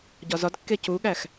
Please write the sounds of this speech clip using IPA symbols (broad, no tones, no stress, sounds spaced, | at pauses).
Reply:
ɟ ɒ z ɒ d kː e c u ɠ æ x